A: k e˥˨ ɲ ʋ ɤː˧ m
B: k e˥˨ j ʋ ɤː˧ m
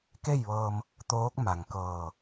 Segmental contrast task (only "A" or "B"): B